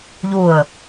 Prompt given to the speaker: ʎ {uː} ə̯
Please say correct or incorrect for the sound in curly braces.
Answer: incorrect